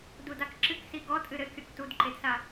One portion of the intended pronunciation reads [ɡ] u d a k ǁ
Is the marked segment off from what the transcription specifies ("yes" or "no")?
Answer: yes